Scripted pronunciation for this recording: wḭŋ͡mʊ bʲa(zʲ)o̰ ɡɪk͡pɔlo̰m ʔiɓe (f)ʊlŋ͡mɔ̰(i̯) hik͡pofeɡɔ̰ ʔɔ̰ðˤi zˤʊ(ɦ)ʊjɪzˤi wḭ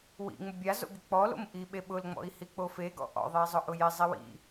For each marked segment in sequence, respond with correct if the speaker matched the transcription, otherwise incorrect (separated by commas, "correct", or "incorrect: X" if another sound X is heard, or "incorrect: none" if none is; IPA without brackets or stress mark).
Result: incorrect: z, incorrect: ɓ, correct, incorrect: ʔ